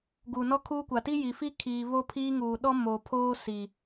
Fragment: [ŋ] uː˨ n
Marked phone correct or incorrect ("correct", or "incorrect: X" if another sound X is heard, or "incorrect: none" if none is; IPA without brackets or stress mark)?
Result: incorrect: ɡ